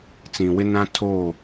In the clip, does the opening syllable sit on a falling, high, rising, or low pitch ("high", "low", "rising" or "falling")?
low